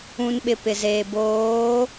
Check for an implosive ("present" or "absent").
present